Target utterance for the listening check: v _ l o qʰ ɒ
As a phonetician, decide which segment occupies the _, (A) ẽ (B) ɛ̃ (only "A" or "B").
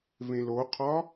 A